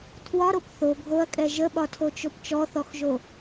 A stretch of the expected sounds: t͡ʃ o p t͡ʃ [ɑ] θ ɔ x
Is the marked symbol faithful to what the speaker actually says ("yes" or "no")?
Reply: no